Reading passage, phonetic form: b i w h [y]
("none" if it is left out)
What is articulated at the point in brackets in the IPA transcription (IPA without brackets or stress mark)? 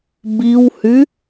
y